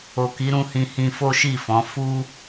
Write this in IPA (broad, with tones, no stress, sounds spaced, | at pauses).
o˨ k i˨˦ ɾ ũ˧ h ĩ˧ h ĩ˧ f o˦ ʃ i˦˨ f ɔ̃˨˦ f u˦